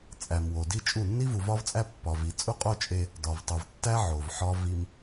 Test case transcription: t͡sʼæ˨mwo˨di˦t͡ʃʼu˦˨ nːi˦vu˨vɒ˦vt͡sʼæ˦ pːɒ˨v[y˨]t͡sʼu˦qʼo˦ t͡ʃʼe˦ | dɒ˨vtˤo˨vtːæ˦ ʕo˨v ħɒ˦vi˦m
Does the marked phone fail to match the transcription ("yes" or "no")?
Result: yes